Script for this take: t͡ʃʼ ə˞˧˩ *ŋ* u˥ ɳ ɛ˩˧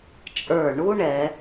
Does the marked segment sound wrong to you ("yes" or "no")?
yes